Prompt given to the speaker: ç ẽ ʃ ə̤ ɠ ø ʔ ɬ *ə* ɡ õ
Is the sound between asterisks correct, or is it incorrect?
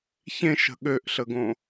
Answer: correct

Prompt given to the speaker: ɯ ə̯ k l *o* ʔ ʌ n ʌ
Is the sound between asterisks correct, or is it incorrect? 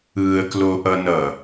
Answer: correct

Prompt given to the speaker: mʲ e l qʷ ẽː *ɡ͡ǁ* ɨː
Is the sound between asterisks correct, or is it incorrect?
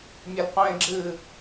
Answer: correct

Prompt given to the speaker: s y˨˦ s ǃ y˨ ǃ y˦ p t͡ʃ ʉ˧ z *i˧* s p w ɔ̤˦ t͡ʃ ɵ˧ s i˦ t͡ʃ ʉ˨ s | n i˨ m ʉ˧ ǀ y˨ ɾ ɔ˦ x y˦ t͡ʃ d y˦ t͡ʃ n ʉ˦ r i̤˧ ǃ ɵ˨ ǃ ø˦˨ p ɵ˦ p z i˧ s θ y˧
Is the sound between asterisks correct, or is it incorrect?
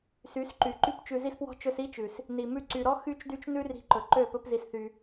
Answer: incorrect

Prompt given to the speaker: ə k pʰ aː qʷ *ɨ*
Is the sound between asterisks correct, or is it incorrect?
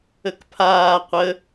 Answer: incorrect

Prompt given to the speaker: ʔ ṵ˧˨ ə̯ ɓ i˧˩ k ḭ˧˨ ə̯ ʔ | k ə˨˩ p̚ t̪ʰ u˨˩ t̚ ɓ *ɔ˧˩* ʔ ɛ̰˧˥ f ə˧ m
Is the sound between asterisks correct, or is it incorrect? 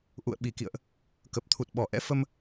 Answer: correct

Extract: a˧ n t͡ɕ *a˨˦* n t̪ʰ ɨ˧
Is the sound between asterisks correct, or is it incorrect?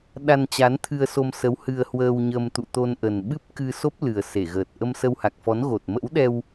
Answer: correct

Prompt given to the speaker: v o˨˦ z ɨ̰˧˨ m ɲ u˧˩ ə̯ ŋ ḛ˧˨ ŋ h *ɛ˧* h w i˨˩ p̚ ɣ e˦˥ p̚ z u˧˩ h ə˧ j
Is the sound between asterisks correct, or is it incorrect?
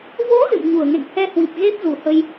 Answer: correct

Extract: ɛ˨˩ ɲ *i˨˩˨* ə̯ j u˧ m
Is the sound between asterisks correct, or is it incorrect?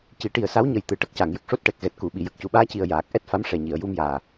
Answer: correct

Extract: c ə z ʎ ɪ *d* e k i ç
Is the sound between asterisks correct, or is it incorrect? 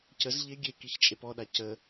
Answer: incorrect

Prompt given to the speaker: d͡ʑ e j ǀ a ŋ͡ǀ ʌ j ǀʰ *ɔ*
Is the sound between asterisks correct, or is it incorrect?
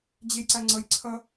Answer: incorrect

